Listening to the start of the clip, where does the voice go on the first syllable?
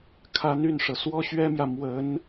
rising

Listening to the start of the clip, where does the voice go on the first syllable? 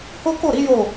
high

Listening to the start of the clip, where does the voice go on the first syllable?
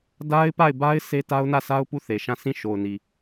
high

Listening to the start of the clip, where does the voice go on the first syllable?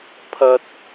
high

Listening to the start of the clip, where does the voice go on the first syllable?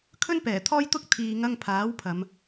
high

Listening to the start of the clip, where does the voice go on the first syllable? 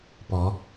rising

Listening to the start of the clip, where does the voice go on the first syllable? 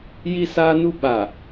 high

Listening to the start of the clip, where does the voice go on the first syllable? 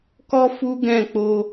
high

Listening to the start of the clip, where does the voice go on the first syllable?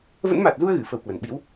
rising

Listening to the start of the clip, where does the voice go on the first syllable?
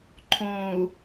low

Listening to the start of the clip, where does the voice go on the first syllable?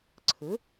rising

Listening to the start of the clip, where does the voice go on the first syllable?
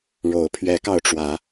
rising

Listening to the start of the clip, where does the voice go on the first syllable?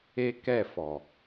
high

